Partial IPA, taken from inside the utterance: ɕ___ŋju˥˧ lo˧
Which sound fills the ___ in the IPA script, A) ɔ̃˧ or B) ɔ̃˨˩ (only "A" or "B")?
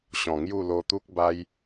B